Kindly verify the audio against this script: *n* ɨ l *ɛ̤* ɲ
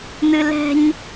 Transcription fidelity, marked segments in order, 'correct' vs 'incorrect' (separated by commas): correct, correct